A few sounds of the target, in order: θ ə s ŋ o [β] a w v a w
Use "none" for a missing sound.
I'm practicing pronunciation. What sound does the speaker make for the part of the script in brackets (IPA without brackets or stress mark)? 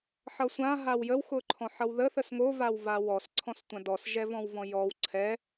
v